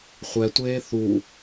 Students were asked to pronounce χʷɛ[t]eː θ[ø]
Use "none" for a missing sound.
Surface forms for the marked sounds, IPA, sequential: tʷ, u

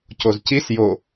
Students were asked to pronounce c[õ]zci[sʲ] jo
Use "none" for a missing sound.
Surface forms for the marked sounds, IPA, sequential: o, s

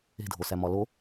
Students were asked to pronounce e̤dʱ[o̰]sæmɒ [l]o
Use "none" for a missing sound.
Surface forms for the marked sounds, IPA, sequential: o, l

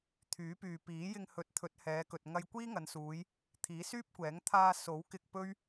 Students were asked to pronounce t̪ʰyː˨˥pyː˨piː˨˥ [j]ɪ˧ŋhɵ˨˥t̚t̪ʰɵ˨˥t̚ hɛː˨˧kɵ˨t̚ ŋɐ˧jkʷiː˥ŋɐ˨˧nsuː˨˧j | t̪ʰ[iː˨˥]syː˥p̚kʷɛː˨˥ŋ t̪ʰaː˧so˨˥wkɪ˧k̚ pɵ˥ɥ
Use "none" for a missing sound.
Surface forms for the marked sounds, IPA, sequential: j, iː˨˥

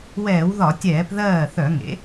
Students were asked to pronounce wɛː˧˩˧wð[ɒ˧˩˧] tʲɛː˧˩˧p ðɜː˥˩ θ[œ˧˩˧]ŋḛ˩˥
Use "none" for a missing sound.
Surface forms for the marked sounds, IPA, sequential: ɒ˧˩˧, œ˧˩˧

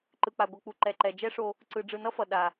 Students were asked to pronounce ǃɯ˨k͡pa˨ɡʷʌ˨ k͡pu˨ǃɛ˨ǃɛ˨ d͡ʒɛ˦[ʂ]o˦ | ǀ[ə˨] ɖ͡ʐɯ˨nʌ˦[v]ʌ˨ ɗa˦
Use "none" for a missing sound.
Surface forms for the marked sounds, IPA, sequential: ʂ, ɯ˨, f

